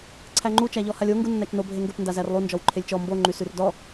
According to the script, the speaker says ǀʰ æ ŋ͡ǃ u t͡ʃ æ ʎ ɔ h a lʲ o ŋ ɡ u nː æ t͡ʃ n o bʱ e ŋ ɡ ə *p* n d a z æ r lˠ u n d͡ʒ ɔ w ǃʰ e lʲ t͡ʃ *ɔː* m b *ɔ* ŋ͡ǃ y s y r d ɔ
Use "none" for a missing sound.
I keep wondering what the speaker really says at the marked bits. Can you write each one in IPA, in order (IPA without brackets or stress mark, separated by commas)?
p, ɔ, o